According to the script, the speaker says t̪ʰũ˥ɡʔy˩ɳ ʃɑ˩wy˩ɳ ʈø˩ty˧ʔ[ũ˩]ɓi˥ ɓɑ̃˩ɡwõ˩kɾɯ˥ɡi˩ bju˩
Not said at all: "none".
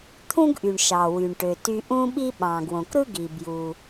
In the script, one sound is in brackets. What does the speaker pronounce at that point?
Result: ũ˥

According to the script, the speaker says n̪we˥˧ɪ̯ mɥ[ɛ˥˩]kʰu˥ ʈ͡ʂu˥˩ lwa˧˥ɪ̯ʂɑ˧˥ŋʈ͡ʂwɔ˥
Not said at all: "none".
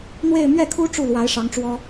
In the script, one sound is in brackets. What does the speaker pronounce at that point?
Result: ɛ˥˩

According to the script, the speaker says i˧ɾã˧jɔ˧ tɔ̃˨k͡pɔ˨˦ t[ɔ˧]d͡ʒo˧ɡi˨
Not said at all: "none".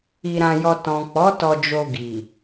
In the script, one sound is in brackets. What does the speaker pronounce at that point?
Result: ɔ˧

